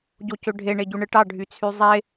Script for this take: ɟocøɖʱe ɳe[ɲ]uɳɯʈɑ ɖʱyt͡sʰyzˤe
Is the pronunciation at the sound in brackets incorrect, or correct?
incorrect